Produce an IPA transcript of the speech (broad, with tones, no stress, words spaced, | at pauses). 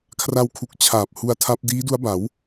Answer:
kʰra˧wkʰu˨˩k̚ t͡ɕʰaː˨˩p̚ hu˦˥a̯tʰa˦˥p̚ diː˦˥du˦˥a̯ba˩˦w